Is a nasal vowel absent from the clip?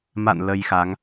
yes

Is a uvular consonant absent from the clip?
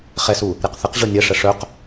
no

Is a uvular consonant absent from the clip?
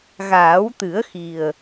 yes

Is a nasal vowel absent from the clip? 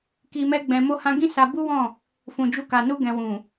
no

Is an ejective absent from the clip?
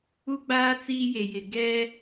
yes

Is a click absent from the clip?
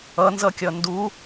yes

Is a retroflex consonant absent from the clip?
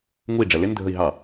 no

